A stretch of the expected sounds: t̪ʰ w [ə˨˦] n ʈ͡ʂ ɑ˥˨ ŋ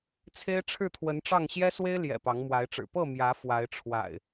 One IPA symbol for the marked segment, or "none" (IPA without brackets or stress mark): ə˨˦